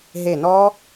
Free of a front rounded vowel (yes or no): yes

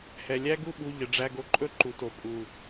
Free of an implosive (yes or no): no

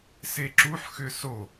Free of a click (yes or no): no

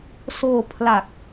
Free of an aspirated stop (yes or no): no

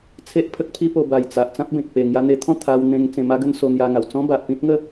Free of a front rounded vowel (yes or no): yes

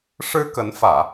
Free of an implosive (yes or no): yes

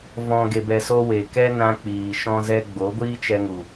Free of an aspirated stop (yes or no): yes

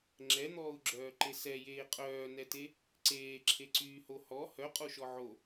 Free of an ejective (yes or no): no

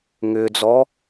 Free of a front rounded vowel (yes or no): no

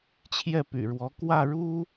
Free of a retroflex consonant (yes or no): no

